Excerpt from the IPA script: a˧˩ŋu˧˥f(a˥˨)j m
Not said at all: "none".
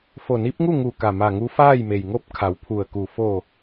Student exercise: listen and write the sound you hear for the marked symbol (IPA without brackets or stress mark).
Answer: aː˥˨